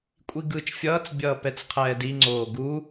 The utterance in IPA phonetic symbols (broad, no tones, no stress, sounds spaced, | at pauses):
kʷʼ i ɡ ɯː t͡ʃ fʲ ʌː t͡s bʲ ʌː p ɛ t͡s qʰ ɛː d i ŋ͡ǀ oː ɡ u